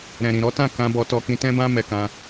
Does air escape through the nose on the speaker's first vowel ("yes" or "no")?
yes